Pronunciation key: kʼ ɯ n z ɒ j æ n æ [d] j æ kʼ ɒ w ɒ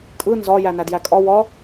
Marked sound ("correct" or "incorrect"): correct